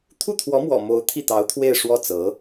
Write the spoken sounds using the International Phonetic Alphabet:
t̪ʰ u˥˩ t̪ʰ w ɔ˧˥ m w ɔ̰˨˩ m o˧˥ ʊ̯ t̪ʰ i˥˩ t̪ ɑ˧˥ ʊ̯ t̪ʰ w e˥˧ ɪ̯ ʂ w ɔ˥˩ t͡s ɤ˧˥

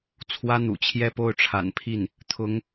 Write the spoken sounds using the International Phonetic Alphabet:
t͡sʰ w ä˥ n̪ ṵ˨˩ t͡ɕʰ j ɛ˥˧ p o˥˩ ʊ̯ ʈ͡ʂʰ a̰˨˩ n pʰ i˥˩ n | t̪ʰ ʊ˧˥ ŋ

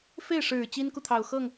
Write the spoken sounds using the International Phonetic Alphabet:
f e˥˩ ɪ̯ ʂ ɻ̩˨˩ t͡ɕ i˥ n k u˨ t̪ʰ ɑ˨˩ ʊ̯ x ɤ˥˩ ŋ

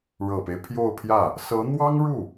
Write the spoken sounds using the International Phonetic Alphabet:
ɻ ɤ˨˩ p e˦ ɪ̯ pʰ j o˥˧ ʊ̯ pʰ j ä˥˩ | s ɤ˧˥ n̪ w ɑ˥ ŋ ɻ u˥˩

